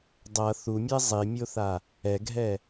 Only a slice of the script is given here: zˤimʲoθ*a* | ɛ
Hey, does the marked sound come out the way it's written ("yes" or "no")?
yes